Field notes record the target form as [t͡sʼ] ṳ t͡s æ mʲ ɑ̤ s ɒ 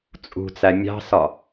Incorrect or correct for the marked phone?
correct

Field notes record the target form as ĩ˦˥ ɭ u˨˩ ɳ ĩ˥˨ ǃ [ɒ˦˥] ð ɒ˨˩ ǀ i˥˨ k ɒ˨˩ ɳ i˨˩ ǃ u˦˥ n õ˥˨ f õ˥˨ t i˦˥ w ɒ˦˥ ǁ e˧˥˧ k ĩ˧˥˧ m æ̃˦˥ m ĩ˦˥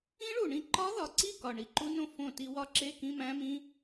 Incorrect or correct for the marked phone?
correct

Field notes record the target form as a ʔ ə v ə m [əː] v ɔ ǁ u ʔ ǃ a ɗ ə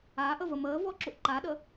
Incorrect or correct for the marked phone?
correct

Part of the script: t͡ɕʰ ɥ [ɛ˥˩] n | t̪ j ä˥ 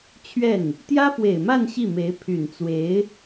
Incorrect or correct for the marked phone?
correct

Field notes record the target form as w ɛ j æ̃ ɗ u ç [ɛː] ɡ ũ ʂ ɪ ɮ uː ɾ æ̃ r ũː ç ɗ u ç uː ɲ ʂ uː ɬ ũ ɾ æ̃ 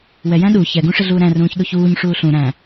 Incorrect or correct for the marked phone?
incorrect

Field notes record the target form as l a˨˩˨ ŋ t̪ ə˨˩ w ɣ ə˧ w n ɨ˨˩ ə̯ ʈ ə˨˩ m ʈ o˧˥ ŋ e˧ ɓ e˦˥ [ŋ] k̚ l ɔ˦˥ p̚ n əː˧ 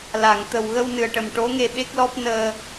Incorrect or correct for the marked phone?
incorrect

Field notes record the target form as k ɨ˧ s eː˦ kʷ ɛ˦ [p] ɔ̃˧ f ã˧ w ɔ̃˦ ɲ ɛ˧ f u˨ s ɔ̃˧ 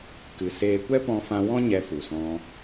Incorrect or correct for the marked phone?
correct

